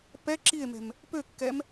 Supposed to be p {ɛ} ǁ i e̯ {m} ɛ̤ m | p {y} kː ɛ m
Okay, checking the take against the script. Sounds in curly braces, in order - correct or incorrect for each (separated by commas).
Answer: correct, correct, incorrect